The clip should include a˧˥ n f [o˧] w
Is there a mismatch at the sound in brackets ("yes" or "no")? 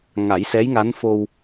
no